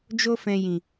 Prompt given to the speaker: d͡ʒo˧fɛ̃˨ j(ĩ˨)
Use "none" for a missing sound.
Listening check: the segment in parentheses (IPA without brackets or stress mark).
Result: ĩ˨